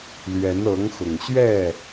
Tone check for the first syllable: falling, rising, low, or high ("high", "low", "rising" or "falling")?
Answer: rising